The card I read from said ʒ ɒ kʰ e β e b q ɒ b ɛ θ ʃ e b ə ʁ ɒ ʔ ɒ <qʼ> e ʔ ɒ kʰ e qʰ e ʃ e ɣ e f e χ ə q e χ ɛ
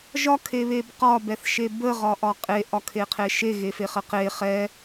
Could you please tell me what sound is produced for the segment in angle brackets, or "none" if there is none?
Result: qʼ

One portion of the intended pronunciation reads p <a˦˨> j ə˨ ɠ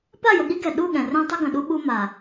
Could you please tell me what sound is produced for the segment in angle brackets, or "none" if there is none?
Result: a˦˨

